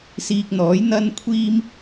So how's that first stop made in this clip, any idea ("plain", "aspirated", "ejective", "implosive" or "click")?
plain